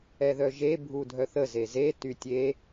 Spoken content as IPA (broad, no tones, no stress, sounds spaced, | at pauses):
ɛ ð œ ʒ e bʱ u dʱ œ θ ə z e z e t y tʲ e